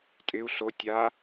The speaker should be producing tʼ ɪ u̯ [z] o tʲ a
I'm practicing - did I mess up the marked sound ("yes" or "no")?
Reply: yes